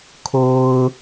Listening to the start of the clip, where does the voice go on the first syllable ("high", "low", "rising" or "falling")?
low